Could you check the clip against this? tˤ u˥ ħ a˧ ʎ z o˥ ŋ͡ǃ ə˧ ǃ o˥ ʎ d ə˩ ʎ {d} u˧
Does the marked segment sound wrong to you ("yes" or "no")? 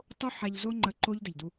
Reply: no